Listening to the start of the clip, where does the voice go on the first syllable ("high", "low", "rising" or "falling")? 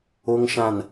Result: low